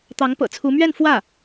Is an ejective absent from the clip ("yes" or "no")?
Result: yes